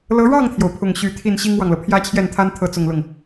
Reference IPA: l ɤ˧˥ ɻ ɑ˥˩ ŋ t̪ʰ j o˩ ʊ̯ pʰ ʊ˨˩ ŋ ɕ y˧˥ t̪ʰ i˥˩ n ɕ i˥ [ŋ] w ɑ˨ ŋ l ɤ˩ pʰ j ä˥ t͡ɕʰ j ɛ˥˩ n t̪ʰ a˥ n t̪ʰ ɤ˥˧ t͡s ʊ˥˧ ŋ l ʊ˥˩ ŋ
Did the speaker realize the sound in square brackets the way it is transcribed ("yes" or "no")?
yes